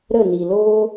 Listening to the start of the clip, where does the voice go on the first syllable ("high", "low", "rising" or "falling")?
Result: falling